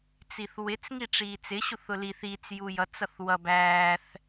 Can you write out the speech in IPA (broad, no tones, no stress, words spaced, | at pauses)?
t͡siθwɪt͡s ŋiʈ͡ʂiːt͡sɪ ɕuθʊliθ it͡s jujʌt͡s ʌθwʌ bæːθ